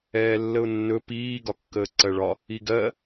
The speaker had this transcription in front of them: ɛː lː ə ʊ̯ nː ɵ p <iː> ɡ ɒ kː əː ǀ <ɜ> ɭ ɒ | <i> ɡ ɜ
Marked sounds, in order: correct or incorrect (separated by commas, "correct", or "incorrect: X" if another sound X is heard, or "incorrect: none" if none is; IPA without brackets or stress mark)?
correct, correct, correct